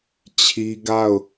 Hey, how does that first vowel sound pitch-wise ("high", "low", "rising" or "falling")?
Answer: high